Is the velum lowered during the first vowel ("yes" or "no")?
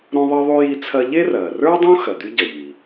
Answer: yes